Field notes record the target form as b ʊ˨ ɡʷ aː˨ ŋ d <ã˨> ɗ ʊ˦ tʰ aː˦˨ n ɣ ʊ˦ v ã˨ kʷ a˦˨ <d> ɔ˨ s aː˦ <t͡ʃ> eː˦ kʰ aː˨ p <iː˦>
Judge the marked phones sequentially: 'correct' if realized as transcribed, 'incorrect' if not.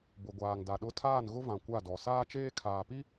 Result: incorrect: a˨, correct, correct, incorrect: i˦

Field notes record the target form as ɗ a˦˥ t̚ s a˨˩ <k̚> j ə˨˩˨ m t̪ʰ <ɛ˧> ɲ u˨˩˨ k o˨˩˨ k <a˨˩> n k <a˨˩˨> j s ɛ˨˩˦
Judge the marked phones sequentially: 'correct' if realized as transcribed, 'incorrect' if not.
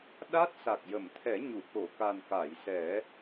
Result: correct, incorrect: ɛ˨˩˦, correct, correct

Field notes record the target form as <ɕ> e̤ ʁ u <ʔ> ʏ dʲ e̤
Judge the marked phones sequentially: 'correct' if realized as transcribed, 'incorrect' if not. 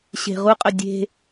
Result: correct, incorrect: qʼ

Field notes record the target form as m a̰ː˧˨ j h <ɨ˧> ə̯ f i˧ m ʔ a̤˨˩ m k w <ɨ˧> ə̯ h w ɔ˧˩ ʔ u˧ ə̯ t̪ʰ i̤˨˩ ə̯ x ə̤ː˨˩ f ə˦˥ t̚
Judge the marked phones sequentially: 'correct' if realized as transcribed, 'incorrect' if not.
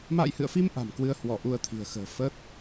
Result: incorrect: ɨ̰˧˨, correct

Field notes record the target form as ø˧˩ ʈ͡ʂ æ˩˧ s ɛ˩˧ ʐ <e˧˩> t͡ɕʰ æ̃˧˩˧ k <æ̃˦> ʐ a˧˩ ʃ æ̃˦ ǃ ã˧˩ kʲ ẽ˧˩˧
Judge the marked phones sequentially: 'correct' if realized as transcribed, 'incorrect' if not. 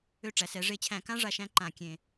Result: correct, incorrect: ã˦

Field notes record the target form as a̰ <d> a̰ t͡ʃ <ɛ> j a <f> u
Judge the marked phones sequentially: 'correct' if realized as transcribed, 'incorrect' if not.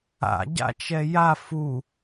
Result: incorrect: ɟ, correct, correct

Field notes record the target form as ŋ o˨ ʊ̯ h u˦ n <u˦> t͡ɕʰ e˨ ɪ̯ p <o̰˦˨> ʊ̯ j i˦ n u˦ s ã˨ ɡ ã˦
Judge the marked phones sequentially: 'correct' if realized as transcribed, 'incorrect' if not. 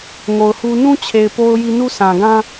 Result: incorrect: ũ˦, incorrect: o˦

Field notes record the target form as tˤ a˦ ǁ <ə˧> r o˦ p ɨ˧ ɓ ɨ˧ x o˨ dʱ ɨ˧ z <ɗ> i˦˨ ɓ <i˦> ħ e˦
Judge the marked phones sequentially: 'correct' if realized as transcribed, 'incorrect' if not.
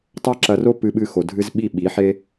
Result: incorrect: ɐ˧, incorrect: ɓ, incorrect: i˨˦

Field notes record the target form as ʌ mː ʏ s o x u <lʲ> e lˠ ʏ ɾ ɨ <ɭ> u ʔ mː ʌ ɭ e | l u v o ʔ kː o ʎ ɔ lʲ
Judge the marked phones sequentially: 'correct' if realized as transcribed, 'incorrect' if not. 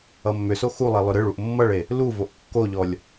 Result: incorrect: lˠ, correct

